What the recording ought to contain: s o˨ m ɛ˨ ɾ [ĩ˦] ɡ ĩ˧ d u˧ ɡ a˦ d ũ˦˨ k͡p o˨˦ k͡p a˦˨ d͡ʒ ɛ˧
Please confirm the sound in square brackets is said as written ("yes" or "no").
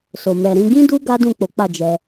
no